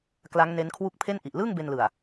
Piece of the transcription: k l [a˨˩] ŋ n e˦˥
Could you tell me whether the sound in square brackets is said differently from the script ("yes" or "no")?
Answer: yes